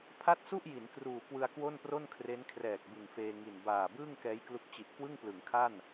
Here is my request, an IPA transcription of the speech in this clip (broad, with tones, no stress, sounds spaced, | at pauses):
pʰ a˥˩ t̚ s u˥˩ ʔ j i˩˦ n k r uː˨˩ k w ɯ˧ a̯ k w o˥˩ n p r o˥˩ n kʰ r e˦˥ n kʰ r ɛː˨˩ k̚ b ɯ˨˩ ŋ f eː˧ ŋ i˨˩ n b aː˨˩ b ɯː˥˩ ŋ k ɛː˦˥ j k l u˦˥ k̚ t͡ɕ i˨˩ ʔ k w ɯ˥˩ ŋ p l ɯ˩˦ ŋ kʰ a˥˩ n